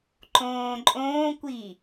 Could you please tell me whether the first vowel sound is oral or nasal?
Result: nasal